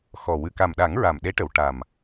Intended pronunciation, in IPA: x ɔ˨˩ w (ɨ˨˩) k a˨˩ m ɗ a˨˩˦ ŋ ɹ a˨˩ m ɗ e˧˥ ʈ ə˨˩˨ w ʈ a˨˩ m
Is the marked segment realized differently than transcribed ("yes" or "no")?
no